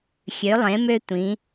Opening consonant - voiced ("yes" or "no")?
no